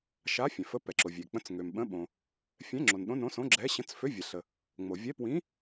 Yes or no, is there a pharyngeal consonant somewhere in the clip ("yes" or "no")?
no